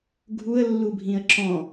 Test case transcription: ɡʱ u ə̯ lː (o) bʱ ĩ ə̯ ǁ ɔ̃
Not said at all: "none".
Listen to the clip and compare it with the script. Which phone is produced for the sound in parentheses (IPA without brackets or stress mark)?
u